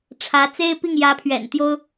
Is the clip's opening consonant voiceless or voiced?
voiceless